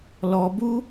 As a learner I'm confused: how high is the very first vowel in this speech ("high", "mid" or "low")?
mid